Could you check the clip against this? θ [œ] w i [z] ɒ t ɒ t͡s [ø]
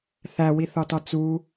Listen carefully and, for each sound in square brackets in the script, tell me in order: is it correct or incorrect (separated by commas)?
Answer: incorrect, incorrect, incorrect